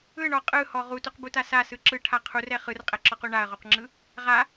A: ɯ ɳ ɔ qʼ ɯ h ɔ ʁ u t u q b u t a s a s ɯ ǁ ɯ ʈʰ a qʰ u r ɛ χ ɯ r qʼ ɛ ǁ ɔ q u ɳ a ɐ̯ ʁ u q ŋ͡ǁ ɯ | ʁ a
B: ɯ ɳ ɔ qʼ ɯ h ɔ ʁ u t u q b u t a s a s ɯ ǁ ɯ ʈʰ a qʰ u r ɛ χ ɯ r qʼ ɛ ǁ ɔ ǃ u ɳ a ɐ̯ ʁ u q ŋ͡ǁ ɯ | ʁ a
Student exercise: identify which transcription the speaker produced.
A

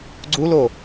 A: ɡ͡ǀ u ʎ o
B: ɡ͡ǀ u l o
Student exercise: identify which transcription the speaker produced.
B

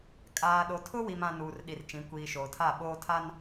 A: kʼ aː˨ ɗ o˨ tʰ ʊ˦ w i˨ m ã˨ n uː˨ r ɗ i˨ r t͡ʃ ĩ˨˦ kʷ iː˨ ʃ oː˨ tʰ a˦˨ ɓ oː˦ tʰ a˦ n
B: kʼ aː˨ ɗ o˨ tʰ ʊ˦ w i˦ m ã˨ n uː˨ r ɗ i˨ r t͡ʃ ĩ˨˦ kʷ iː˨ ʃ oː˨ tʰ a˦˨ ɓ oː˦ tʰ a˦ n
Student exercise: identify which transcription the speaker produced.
A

